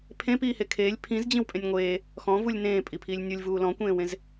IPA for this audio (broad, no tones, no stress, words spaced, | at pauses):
pʰẽpiːhe kʰeːlʲ pʰĩzd͡ʑĩwpʼẽnʲ ŋʷeː | xɔ̃vulʲ nẽːpʼipʰiːlʲ nʲulʲvuː lɔ̃kʷẽːwẽz